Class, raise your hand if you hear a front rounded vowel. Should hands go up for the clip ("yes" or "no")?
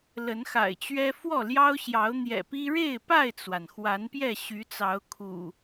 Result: yes